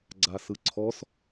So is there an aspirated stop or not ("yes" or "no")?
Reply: yes